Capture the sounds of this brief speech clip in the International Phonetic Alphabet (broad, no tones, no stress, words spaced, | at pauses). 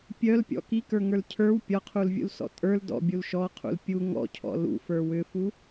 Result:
pʲœlpʲɔ̰ kikə˞ŋə˞l cʰə˞w pʲɒqʰulvʲṵlsɔ̰ tʼə˞l dɔ̰bʲul ʃɔqʰṵl pʲu ŋɔ̰cʰɔ̰ lṵfə˞ wʏfu